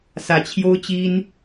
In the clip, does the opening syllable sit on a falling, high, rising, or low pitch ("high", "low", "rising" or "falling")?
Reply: low